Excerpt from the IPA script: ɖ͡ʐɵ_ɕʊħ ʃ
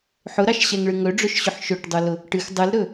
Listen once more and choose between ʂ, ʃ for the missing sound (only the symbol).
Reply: ʃ